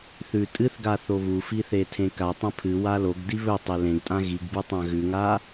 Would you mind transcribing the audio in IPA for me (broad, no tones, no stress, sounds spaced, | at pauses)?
θ ʉ tʼ ɨ θ ɡ a θ o β u f i θ e tʰ ẽ k a tˤ ɐ̃ pʰ ɨ w a l o ɡ d i β ɵ tˤ e l ẽ ɡ tʼ ã ɣ i ɡ b ɨ tˤ ã ɣ ʉ ŋ a